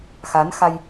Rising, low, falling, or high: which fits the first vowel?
rising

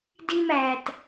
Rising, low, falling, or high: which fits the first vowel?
high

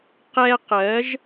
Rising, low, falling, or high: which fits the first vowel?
high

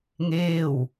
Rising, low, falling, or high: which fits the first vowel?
falling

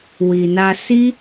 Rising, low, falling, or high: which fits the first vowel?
low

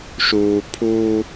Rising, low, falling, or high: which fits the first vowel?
low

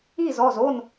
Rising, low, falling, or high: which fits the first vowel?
falling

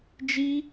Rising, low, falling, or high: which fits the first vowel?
high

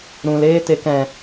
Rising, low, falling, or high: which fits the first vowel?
low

